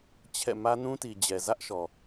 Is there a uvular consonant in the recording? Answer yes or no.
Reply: no